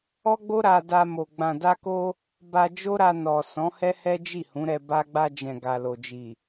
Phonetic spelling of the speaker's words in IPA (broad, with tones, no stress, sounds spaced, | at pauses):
ɔ˦ ɡ͡b o˦ ɾ a˧ d a˧ m o˨ ɡ͡b ã˨ d a˧ k o˧ | b a˧ d͡ʒ o˦ ɾ a˧ n ɔ˨ s ɔ̃˨˦ h ɛ˦ h ɛ˦ d͡ʒ i˦˨ h ũ˨˦ ɾ ɛ˧ b a˧ ɡ͡b a˧ d͡ʒ ɛ̃˨ ɡ a˨ l o˨ d͡ʒ i˨